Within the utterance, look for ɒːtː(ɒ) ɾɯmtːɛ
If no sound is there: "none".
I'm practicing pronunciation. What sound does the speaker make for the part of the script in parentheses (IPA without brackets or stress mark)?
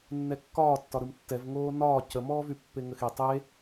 ɒ